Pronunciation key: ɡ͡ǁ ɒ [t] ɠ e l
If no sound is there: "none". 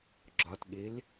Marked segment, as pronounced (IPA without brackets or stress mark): t